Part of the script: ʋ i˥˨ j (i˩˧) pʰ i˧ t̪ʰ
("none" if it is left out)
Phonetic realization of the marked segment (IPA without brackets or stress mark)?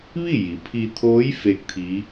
i˩˧